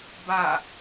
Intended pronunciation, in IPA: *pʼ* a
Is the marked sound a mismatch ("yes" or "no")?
yes